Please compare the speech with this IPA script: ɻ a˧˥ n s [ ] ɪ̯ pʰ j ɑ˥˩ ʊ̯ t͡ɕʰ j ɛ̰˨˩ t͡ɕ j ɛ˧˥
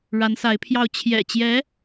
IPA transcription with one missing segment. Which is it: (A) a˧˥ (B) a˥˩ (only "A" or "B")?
A